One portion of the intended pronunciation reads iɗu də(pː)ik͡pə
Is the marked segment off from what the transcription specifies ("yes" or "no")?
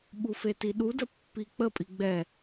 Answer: no